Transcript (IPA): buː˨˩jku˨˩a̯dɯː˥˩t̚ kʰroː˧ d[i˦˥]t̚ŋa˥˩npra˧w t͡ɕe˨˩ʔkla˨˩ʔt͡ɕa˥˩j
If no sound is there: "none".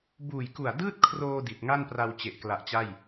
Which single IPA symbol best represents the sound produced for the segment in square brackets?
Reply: i˨˩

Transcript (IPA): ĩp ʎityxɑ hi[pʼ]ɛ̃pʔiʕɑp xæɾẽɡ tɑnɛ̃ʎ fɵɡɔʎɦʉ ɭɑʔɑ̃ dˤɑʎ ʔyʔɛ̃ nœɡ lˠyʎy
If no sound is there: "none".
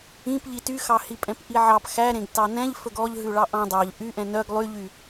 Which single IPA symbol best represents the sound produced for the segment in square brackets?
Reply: pʼ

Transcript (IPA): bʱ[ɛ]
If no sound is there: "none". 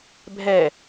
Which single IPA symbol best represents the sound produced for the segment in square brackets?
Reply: ɛ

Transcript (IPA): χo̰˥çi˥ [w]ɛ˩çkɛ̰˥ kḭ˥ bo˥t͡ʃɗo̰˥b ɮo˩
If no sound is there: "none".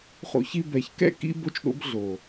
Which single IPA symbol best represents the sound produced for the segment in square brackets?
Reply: b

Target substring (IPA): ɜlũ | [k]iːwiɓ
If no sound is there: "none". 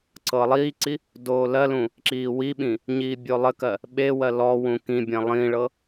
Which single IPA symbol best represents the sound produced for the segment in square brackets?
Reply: ǁ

